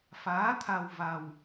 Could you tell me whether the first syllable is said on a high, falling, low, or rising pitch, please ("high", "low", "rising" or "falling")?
rising